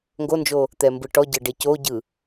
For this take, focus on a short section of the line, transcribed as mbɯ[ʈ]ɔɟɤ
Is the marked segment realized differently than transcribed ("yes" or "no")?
no